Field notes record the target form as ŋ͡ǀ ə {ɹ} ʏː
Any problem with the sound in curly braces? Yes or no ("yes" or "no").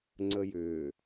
yes